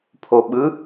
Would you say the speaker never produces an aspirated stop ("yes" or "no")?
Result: no